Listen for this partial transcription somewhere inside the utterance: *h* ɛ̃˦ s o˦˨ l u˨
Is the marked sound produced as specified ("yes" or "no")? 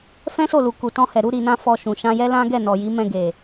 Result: no